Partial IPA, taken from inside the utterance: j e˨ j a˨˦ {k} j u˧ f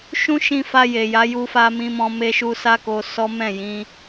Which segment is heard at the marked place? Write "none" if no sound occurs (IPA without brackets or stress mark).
none